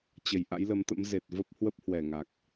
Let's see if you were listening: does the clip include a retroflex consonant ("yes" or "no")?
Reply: no